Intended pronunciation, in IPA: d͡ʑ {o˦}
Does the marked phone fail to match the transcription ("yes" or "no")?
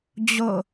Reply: yes